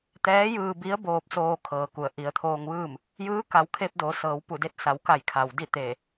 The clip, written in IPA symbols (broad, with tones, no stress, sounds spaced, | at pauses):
t̪ ɛː˧˥ j ɯː˧ b i˧˥ ə̯ b oː˧ p̚ s oː˧ kʰ ɤː˩ k u˩ ə̯ ʔ i˩˧ ə̯ t̪ʰ oː˧ ŋ ʋ ɯː˥˨ m | j ɯː˧˥ k a˩˧ w kʰ e˧ p̚ d o˩˧ s ɤː˩˧ w p u˧˩ d e˧ t̚ s a˩˧ w k a˧˩ j kʰ a˩ w d i˥˨ t̪ eː˧˩